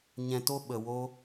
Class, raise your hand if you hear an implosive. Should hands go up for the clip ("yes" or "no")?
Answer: yes